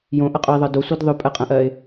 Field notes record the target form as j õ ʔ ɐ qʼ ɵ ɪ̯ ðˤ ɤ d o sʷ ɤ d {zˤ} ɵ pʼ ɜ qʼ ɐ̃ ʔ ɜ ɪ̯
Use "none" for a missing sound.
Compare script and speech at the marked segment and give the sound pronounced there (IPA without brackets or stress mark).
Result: ðˤ